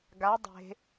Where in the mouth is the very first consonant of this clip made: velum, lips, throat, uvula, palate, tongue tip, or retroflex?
velum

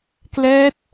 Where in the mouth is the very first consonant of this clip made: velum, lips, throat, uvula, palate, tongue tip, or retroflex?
velum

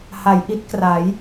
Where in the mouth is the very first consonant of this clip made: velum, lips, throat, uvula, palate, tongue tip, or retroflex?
throat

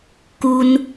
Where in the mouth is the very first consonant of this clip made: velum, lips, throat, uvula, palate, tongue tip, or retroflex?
velum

